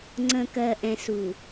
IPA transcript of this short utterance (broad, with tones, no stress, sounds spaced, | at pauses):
ŋ͡ǀ ə̃˨ k ɜ˨ ʔ ɛ̃˨ s u˨